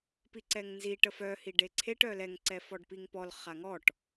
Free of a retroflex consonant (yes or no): no